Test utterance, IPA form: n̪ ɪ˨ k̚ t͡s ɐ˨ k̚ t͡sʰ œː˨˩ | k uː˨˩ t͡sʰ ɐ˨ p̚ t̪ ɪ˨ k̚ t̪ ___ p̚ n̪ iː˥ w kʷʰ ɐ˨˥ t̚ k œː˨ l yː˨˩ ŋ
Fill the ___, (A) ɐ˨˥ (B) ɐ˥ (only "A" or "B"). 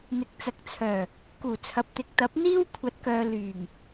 A